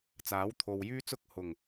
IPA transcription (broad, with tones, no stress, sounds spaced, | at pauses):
t͡s aː˨˥ w t̪ʰ o˨ w j yː˥ t͡s ʊ˥ k̚ h ʊ˨˩ ŋ